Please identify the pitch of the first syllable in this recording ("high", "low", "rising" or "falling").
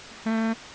high